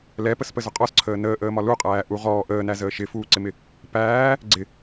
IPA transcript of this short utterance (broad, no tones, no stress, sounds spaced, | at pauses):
l ɛ p ə s p ə z ʊ qʼ ɔ s ǀʰ əː n əː ʔ əː m ɒ l u qʼ æː ʔ u ʁ ɔː ʔ əː n æ z əː ʃ ɪ f uː ǀ ɪ m ɪ | p æː | ɡ͡ǀ ɪ